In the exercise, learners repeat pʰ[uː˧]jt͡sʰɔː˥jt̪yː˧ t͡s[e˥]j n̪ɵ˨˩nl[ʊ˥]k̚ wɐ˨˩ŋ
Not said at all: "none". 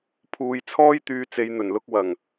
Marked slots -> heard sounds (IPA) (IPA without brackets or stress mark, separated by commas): uː˧, e˧, ʊ˧